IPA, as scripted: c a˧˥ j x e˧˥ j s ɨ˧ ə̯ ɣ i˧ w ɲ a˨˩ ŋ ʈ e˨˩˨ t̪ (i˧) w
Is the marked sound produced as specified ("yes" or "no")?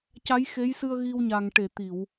no